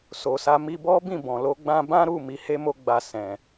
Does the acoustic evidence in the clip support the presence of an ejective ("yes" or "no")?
no